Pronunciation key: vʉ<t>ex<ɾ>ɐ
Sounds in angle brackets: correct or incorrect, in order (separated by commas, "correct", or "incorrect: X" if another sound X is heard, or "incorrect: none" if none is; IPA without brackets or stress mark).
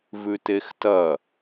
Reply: correct, incorrect: t